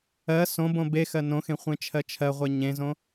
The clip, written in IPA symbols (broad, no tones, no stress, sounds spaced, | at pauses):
ɜ s õ b õ b e x ɜ n õ x ẽ χʷ ẽ t͡ʃʰ ɜ t͡ʃʰ ɜ ʁʷ e ɲ ẽ z õ